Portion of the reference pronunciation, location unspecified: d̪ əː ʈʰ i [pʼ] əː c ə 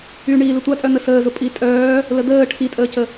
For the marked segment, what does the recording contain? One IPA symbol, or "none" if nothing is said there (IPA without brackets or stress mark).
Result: tʼ